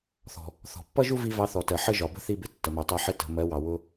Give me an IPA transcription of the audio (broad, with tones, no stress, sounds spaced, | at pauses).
θ ɔ̤˨ | θ ɔ̤˨ pː ʌ˦ ʒ u˦ v i˧ v ɑ˧ θ ɔ˨ t ɜ˨ ħ ə˦ ʒ ɒ˨ b ə̤˦ θ i˧ b ɪ˨ tː ə˨ m æ˨ tˤ æ˧ ħ ɪ˧ t ə̤˨ m ɜ˨˦ w ɑ˨ w ʊ˧